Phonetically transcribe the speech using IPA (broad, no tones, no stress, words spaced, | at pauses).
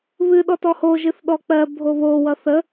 βɨ ɗɔtɔho ʒɨθɗɔk͡pɜ bʱoβo wʌθə